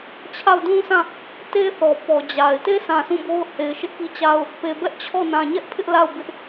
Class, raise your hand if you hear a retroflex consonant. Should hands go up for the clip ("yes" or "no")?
no